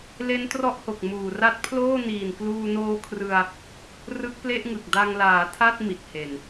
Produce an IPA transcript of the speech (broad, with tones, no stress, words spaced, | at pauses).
le˦˥ntrɔ˦˥ʔho˨˩k̚ muː˨˩ra˦˥t̚pʰloː˥˩ niː˨˩nkluː˧noː˦˥kʰrɯ˧a̯ | rɯ˦˥k̚ple˥˩ʔŋɯ˨˩k̚ da˧ŋlaː˩˦tʰa˥˩t̚ mi˨˩t̚he˨˩n